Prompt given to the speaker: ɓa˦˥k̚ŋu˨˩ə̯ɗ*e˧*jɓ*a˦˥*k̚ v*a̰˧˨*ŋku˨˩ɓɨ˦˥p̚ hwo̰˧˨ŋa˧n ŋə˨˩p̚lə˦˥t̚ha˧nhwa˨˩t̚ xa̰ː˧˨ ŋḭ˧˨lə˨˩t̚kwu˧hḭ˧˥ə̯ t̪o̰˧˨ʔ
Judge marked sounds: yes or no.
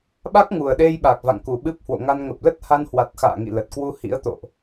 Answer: yes, no, yes

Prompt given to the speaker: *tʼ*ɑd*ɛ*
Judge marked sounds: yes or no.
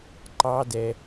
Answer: no, yes

